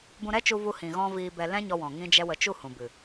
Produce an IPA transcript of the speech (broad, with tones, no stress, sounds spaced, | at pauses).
b ũ˧ ɾ ɛ˦ t͡ʃ u˧ v u˧ h ĩ˨ ɣ ɔ̃˧ v iː˧ b ɛ˧ l ɛ̃˦ ɲ ɔ˧ w ɔ̃˨ ŋ ĩ˦ d͡ʒ ɛ˦ w ə˧ t͡ʃ u˦˨ h ũ˨ b ɨ˨